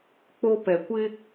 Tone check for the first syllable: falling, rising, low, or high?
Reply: high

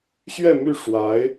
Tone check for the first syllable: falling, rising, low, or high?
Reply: falling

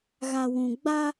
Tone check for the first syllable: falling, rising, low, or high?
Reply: low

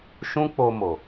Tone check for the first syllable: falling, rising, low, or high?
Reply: high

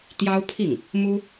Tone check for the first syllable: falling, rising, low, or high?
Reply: high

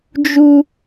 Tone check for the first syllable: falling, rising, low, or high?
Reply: high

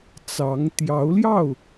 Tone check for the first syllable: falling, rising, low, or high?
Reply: rising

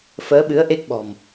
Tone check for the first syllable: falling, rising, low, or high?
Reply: rising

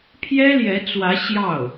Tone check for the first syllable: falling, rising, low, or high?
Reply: high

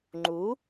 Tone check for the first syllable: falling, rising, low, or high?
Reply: rising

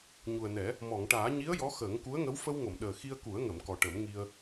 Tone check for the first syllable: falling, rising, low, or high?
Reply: low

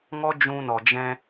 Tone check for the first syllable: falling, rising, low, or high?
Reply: high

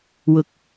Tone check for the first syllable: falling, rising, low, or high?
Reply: low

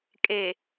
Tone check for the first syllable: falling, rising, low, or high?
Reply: low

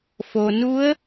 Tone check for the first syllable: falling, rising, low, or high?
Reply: low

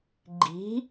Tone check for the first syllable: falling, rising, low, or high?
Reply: rising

